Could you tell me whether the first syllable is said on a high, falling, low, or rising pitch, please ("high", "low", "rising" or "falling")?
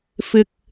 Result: low